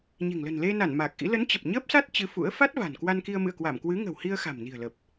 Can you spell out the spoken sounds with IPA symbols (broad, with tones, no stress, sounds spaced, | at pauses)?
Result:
ɲ e̤˨˩ ŋ l ə̤˨˩ n l e˧ n a˧˩ n m a˨˩ k̚ ʔ ḭ˧˥ l ə˨˦ n t͡ɕ ə˨˩ p̚ ɲ əː˦˥ p̚ s a˦˥ t̚ t͡ɕ ɨ˨˦ f ṵ˧˥ ə̯ f a˦˥ t̚ v a̤˨˩ n k w a˧ n k i˧ ə̯ m ɨ̰˧˨ ə̯ k w a˧˩ m k w ɨ˨˦ ŋ ə̤˨˩ w h i˧ ə̯ x a̤˨˩ m n i̤˨˩ ə̯ l ə˨˩ p̚